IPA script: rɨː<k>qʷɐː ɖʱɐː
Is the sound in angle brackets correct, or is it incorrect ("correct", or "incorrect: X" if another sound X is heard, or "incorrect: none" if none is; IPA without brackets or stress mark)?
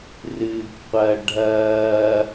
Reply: correct